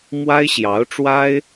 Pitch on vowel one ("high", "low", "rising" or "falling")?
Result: high